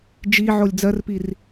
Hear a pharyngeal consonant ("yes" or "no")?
yes